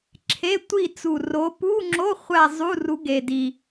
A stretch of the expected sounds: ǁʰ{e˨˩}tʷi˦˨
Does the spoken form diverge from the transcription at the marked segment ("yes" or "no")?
yes